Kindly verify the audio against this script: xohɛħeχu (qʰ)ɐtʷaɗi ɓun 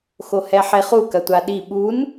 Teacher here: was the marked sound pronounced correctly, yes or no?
no